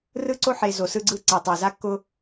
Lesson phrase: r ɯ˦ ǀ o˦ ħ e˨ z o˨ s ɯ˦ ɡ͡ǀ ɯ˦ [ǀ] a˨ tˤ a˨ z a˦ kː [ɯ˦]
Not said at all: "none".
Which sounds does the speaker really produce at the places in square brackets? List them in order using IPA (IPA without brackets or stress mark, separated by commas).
ǀ, ʊ˦